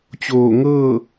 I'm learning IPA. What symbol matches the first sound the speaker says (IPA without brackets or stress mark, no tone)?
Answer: t͡ɕ